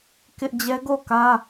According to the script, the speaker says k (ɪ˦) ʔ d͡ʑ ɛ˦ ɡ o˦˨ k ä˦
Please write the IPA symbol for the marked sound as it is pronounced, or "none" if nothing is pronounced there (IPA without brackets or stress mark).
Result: ɪ˦